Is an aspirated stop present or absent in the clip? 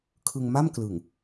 present